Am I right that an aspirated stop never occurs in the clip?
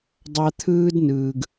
no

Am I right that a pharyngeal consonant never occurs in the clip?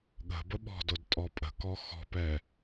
yes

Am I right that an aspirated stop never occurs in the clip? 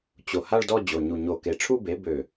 no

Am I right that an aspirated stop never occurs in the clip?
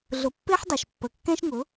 yes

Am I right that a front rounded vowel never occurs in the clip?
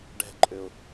no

